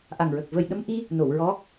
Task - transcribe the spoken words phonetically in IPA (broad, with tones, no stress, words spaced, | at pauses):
ʔa˨˩ŋɹə˨˩k̚ və˨˩jɗə˧m ʔi˧ | no˨˩˨wɹɔ˧˥